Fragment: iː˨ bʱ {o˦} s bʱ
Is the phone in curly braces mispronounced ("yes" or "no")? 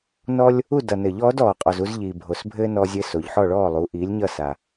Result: yes